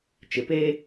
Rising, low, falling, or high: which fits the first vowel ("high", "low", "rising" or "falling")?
low